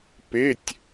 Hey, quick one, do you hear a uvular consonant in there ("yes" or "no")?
no